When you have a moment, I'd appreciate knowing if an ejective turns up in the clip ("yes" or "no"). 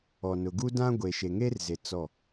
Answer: no